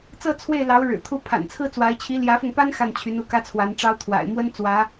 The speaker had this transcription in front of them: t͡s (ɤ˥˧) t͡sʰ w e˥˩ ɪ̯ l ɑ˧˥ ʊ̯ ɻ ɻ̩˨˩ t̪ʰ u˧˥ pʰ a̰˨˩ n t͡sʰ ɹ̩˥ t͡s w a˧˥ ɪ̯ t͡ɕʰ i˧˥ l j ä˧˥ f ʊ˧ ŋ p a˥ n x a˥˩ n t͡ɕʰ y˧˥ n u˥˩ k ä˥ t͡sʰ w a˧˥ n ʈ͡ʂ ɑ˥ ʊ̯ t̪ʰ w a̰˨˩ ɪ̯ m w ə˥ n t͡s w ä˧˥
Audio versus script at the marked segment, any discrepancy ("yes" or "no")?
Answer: no